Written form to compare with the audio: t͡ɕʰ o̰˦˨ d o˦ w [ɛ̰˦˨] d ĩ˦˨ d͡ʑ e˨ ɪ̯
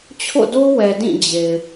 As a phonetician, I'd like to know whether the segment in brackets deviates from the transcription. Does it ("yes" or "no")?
yes